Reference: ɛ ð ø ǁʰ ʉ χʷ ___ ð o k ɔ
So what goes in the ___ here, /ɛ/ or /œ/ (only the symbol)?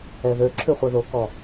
œ